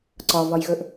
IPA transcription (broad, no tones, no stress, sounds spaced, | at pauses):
ǀ ɒ v ɒ j ɣ ɵ ʔ